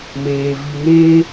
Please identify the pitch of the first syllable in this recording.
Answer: low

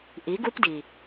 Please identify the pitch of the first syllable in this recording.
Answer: rising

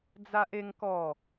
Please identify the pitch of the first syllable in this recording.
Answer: high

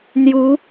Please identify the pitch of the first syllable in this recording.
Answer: rising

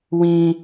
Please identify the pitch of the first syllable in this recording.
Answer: high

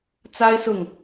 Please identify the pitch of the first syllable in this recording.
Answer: high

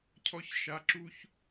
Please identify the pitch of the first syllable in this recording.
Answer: high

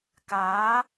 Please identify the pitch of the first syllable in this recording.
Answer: rising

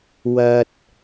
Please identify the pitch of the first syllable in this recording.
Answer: low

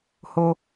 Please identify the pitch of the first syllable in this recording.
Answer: low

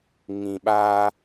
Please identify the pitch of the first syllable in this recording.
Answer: low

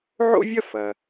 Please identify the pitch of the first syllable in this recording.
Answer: high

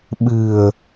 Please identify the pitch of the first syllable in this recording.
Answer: low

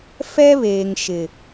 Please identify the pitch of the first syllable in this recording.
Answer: high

